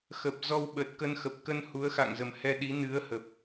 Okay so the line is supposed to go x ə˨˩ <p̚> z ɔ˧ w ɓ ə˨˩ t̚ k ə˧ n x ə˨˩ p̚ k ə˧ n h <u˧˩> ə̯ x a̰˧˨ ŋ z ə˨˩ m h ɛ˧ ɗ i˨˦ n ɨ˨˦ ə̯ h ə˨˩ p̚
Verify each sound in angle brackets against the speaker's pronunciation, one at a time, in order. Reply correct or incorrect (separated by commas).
correct, incorrect